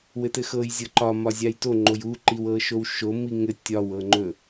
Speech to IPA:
w ɘ t ɘ x ɤ j zʲ ɤ ǃ ɒ m ɒ zʲ a j t o ŋ͡ǃ o j u ǃ i w ɤ ʃ o w ʃ o m i ŋ ɘ tʲ ɒ w ɤ ŋ͡ǃ ɵ

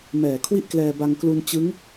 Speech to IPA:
m ɛː˨˩ kʰ w i˥˩ ʔ k l ɛː˧ b a˧ ŋ k l u˧ n t͡ɕ ɯ˦˥ ŋ

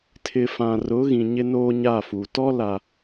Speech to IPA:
tʰ ɪ˨ f ã˨ r ʊ˨˦ ɣ ĩ˨ ɲ ɪ˦ n oː˦ ɲ a˦˨ f u˨ t ɔ˦ l a˨

